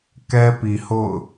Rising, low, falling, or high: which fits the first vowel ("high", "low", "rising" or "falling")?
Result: high